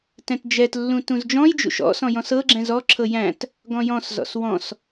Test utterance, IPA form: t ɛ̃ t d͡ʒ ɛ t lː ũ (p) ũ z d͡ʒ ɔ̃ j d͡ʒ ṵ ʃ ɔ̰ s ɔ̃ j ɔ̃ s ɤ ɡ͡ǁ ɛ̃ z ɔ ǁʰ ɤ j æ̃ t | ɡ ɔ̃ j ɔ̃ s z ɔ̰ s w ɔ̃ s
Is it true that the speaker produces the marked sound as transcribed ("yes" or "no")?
no